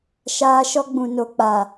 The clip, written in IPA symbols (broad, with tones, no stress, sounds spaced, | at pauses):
ʃ aː˦ ʃ ɔ˦ ɡ͡b ũ˨ n o˨ k͡p a˨